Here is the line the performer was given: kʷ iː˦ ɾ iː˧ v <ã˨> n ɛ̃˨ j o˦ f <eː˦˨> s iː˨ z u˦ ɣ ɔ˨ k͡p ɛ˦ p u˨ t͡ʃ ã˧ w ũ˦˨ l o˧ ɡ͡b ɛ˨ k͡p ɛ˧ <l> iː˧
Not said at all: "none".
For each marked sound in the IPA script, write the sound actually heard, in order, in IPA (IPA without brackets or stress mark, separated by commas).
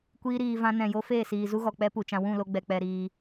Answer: ã˧, eː˦˨, ɾ